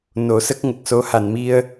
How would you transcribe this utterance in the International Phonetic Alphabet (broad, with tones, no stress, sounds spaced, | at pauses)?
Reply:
n o˨˩˦ s ə˦˥ k̚ ŋ ə˨˩ k̚ s o˧˥ h a˨˩˨ n m i˧ ə̯